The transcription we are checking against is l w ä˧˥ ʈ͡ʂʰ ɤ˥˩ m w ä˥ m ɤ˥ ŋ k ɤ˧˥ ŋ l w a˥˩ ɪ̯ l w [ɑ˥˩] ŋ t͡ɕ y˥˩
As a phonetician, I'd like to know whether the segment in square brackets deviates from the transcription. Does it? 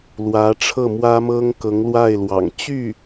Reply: yes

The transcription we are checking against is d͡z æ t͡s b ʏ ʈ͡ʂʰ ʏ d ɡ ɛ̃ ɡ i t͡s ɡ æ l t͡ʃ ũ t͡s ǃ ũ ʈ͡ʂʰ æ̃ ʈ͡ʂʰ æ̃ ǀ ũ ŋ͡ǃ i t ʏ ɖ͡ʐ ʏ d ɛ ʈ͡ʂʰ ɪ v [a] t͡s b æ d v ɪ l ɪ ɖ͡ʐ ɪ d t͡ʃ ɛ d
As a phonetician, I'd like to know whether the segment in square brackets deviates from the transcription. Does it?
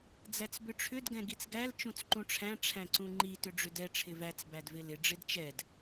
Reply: yes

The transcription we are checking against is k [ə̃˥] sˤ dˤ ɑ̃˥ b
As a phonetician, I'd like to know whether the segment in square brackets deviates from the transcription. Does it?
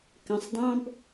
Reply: yes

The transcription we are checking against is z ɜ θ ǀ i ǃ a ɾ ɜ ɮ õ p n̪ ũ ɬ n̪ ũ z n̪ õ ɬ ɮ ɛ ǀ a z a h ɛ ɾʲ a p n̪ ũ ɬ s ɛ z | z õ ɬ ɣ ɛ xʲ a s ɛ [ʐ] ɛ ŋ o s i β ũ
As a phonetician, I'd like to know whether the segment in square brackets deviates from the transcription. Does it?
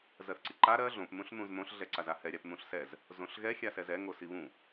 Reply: yes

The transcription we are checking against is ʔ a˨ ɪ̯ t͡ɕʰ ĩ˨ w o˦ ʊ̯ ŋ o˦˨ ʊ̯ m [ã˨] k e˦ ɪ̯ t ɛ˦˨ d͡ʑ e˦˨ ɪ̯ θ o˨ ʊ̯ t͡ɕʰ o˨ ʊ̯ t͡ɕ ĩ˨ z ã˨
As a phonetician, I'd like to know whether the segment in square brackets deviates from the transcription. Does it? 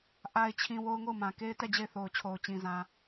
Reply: no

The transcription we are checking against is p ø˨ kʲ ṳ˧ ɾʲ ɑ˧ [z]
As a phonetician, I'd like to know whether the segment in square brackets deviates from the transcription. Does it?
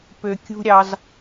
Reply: no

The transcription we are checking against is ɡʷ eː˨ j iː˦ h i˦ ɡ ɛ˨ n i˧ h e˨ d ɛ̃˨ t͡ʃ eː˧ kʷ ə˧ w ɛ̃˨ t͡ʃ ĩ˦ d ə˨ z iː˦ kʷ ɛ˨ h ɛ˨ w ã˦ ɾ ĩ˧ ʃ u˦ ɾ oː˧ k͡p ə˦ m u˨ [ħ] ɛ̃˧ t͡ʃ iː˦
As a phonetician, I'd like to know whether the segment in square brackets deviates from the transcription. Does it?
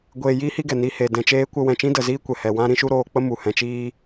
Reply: yes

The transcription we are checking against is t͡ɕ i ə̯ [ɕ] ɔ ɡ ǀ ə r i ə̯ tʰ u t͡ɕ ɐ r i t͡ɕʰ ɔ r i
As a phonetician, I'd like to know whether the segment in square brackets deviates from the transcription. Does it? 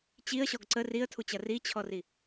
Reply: no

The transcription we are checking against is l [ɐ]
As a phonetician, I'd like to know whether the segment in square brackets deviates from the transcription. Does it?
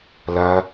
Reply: no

